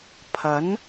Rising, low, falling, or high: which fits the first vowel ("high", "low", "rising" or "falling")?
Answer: rising